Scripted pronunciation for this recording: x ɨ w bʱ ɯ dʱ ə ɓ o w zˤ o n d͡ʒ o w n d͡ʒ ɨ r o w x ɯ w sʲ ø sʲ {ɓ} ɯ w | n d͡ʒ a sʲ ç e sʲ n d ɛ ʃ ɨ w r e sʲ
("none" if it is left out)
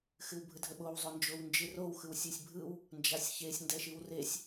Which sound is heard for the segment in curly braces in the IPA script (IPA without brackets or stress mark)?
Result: bʱ